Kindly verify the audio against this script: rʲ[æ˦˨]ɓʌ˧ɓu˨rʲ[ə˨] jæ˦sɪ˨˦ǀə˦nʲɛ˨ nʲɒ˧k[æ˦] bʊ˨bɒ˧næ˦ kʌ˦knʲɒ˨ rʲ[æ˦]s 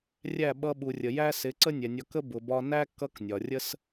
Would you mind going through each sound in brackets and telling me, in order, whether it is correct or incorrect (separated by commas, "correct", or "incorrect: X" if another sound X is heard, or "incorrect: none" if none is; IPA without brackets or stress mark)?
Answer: correct, correct, incorrect: ə˦, incorrect: ə˦